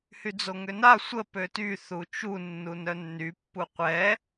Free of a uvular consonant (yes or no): no